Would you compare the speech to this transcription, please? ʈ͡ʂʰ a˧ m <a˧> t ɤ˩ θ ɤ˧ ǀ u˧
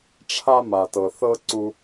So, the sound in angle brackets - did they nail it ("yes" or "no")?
no